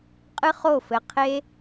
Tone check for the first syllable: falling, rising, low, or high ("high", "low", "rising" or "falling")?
high